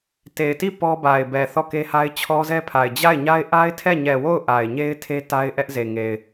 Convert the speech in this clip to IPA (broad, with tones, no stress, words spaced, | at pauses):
te˨ɪ̯ti˦˨ pɔ˦ba˨ɪ̯bɛ˨ θɔ˦˨ke˦ha˦ɪ̯ t͡ɕʰɔ˦zɛ˦pʰa˨ɪ̯ d͡ʑa˦˨ɪ̯ɲa˦ɪ̯ ʔa˦ɪ̯tʰɛ˦˨ɲɛ˨ wo˦˨ʊ̯ ʔa˨ɪ̯ɲe˦ɪ̯tʰe˦ ta˦ɪ̯ʔɛ˦ʔze˨ŋe˨ɪ̯